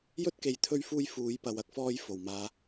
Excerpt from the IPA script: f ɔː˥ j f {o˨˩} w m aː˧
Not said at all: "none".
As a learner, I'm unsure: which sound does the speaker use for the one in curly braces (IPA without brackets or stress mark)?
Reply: o˨˩